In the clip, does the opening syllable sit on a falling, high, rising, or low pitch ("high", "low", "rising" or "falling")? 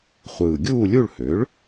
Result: low